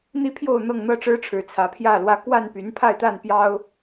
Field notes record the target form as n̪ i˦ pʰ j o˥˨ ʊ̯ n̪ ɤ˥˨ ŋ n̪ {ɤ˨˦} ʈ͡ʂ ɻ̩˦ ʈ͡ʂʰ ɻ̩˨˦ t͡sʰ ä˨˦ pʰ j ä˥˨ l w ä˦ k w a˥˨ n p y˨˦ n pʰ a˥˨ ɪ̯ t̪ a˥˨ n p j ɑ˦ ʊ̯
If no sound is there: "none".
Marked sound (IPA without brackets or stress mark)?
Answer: ɤ˥˨